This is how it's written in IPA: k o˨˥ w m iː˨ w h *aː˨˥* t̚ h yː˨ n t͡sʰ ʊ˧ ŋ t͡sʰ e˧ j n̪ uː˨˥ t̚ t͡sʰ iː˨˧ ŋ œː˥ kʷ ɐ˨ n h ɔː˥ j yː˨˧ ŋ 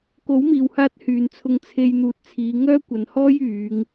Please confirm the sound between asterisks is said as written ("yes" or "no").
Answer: no